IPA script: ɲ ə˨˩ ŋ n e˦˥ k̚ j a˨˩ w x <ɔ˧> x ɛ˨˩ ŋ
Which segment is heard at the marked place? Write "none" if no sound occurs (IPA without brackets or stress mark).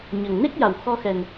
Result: ɔ˧